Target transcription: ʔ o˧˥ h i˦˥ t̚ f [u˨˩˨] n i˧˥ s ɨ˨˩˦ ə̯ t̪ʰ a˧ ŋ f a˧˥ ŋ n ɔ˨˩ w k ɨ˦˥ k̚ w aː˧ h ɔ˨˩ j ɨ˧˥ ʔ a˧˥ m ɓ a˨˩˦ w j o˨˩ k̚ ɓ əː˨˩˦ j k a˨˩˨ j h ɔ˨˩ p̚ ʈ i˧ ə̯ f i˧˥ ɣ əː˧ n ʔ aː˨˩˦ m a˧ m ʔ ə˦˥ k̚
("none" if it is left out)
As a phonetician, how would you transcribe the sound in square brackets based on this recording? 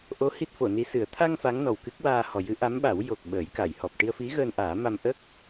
o˨˩˨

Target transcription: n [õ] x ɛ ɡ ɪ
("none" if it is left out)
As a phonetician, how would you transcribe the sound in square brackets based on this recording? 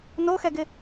o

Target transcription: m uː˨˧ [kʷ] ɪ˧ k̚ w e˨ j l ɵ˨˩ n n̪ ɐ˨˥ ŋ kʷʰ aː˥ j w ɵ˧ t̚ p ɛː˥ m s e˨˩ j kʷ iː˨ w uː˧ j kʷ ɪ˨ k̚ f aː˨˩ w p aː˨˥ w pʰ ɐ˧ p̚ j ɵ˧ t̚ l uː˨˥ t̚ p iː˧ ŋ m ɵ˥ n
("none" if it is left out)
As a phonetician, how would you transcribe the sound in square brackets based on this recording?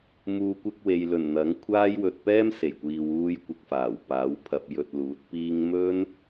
kʷ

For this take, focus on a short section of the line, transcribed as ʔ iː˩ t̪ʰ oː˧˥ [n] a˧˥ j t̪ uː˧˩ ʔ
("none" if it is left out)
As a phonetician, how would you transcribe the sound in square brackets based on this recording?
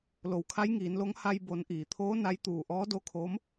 n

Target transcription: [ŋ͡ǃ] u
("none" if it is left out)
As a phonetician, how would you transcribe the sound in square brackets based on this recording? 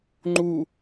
ŋ͡ǃ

